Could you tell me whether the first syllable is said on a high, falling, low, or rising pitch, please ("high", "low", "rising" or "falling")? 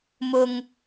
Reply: low